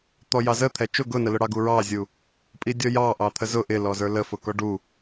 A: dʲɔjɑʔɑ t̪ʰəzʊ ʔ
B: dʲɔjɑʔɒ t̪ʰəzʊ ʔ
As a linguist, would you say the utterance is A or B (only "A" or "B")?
A